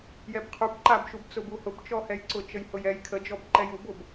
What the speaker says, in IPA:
j ɛ b qʰ u b ǃ a b ʃ u b t͡s ʊ b u h ʊ b t͡ʃ ɔ h ɛ j ǀ ʊ t͡ʃ ə j h ʊ j ɛ j kʰ ə d͡ʒ ɔ b ǃ ɛ j u b ʊ b

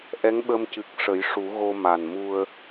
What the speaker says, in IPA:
ʔ ɛ˧˥ ŋ ɓ ə˧ m c ɨ˨˩ k̚ ʂ ə˨˩˦ j ʂ u˨˩˦ ɣ o˧ m a˨˩ n m u˧ ə̯

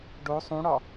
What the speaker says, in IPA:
ɖ o sˤ ũ ɽ ɒ

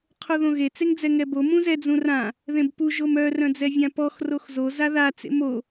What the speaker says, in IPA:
qʰ o ð õ ɣ e t͡s e ŋ d͡z ɛ ŋ ɛ b o m ũ z ɛ d͡z ũ r ã | ð ẽ b p u ʒ o m œ r œ̃ d͡z ɛ vʲ ã p ɔ x r o x z o z a ð a t͡s ḛ m o

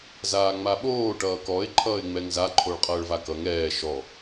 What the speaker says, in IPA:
z aː ŋ͡m a ɓ oː ʈ ʌː k ɔ ɪ̯ ǃʰ ʌː ɪ̯ ŋ͡m ɛ ŋ z a ǃʰ o ɭ qʼ ʌː ɭ v a k ʌ ŋ ɛː ʃ ɔ

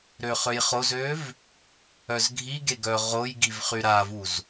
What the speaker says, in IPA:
ɾ ø χ ø j χ o z ø v | œ z ɡʱ i ɡ e ɡ œ ʁ o j ɡ i v χ y ɾ a v u z

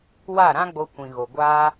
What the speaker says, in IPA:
w a˦˨ ɾ ã˦ ɡ͡b o˧ kʷ ĩ˨ ɣ o˨ ɡʷ aː˦

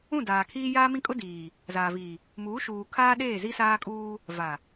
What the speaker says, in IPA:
ũ˦˨ d aː˨ kʰ iː˦ j aː˦ m ĩ˦ kʼ ʊ˦ d iː˨ | z aː˨ v iː˨ | m uː˨˦ ʃ uː˨ kʰ aː˦ ɗ eː˦˨ z i˦ s aː˦ kʼ uː˦ | v a˨

